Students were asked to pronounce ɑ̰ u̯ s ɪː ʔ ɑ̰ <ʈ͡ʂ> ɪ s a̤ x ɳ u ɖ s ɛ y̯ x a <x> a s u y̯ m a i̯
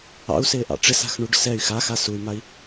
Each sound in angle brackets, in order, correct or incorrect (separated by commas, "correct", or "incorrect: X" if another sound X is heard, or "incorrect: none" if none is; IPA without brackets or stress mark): correct, correct